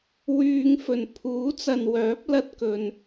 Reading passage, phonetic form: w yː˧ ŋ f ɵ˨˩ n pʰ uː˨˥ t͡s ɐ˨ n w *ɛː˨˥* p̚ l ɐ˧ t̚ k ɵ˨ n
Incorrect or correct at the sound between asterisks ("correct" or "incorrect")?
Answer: incorrect